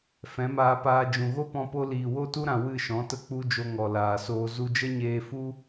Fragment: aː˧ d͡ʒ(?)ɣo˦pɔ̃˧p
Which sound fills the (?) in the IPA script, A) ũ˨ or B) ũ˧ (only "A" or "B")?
A